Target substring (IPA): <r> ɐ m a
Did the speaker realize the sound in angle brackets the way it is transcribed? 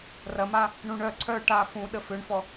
yes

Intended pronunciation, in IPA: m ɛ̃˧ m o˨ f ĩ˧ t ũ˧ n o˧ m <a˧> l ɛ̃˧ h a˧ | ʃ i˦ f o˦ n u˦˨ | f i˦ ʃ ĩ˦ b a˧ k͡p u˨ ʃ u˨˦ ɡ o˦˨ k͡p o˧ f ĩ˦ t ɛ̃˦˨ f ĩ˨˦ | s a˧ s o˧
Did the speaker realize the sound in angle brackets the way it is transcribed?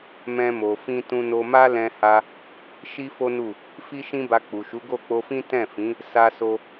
no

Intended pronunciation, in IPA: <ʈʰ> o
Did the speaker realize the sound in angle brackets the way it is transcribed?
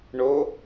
no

